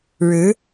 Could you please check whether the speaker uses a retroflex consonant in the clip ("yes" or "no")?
yes